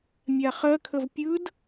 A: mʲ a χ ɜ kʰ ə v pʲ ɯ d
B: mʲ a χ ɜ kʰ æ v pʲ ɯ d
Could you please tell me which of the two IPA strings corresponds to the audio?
A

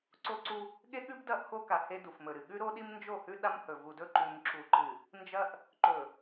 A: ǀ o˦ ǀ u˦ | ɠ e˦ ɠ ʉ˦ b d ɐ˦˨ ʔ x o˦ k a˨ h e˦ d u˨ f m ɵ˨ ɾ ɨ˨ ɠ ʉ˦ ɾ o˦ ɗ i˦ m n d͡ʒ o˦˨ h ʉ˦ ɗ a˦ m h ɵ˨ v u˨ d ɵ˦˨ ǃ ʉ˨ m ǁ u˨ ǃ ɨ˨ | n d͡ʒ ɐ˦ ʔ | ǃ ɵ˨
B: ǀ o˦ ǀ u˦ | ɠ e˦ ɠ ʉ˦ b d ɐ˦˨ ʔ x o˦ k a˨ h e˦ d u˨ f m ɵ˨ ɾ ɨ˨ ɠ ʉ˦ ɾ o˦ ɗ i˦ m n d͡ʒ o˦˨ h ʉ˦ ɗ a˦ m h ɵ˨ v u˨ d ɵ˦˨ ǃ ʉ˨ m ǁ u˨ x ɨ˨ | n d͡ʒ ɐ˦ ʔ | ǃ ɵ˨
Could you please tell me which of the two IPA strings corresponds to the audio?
A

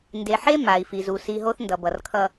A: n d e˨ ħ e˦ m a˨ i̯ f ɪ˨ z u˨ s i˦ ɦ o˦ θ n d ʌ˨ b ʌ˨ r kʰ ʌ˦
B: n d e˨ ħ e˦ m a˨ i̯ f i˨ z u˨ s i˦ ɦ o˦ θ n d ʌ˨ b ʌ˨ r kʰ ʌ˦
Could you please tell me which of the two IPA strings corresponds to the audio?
B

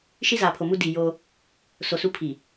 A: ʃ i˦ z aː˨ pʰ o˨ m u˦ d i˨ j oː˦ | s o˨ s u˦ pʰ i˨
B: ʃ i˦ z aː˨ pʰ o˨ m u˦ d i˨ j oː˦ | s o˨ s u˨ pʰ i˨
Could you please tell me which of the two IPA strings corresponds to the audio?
A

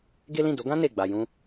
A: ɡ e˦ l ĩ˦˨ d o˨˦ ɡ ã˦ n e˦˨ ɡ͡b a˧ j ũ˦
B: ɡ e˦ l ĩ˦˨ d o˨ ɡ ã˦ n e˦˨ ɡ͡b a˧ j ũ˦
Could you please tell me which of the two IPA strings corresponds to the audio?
A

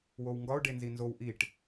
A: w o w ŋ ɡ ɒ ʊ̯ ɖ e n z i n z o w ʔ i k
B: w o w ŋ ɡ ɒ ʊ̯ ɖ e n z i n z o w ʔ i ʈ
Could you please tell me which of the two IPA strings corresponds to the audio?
B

